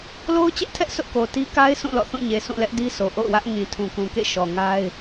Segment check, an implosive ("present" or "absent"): absent